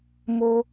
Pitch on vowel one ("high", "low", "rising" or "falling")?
high